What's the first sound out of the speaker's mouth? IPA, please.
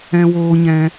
ɛ̃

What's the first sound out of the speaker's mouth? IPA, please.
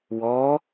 w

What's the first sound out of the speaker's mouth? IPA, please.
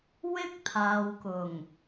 w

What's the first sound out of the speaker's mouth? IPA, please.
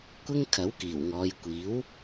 kʷ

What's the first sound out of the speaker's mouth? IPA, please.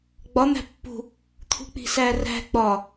ɡ͡b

